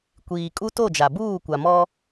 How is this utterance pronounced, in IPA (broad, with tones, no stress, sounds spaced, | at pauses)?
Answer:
kʷ iː˨ kʼ u˦ t o˦˨ d͡ʒ a˨ b uː˦˨ kʷ a˨ m ɔ˦